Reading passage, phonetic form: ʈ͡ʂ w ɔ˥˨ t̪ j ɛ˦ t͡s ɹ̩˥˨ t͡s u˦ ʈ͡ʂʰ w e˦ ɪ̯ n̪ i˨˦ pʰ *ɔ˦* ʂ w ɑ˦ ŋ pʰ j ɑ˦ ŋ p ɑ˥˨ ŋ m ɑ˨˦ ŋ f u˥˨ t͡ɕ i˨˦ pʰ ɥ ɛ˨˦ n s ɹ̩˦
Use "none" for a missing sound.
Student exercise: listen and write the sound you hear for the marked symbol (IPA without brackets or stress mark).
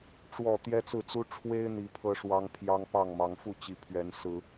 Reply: ɤ˦